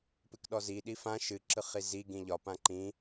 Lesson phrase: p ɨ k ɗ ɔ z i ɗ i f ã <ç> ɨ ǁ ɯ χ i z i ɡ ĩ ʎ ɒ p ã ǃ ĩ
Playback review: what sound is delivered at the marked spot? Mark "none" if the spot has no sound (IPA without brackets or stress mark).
ʃ